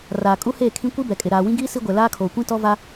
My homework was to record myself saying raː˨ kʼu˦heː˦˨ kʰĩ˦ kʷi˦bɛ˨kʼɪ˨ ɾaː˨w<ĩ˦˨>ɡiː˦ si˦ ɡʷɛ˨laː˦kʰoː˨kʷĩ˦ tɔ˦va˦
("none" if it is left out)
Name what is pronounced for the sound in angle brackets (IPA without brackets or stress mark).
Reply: ĩ˦